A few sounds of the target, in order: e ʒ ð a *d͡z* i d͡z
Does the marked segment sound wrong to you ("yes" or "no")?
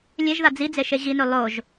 no